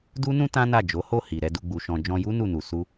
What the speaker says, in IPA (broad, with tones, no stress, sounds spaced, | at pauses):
d u˦ n ũ˦ t ã˦ n a˦˨ d͡ʒ o˨˦ h o˦˨ h i˨ ɾ ɛ˧ d u˧ ɡ͡b u˨ ʃ ɔ̃˨ d͡ʒ ɔ̃˧ j u˦ n u˦˨ n u˨ s u˧